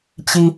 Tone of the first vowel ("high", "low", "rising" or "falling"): high